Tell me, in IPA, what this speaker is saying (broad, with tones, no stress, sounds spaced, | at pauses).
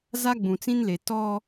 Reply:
z a˦ ɡ͡b ũ˨ t͡s ĩ˦ n l e˨ t ɔ˦